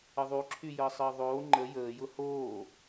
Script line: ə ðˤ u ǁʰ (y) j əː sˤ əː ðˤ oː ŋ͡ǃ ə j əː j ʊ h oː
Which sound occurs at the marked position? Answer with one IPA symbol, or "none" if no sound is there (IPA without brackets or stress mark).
y